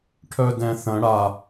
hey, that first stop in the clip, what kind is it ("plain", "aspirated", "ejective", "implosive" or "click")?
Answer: aspirated